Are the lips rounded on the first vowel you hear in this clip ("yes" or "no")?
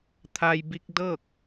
no